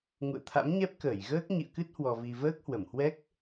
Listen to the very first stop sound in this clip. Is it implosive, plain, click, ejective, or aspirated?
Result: aspirated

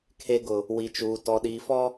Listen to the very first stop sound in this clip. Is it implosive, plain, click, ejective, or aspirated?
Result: aspirated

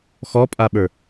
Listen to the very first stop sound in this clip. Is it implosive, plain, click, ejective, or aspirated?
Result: ejective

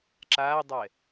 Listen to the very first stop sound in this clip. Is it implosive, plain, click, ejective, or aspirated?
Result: click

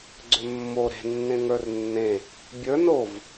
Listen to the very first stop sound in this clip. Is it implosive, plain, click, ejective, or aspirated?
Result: click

